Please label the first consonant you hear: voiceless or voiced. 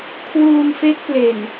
voiceless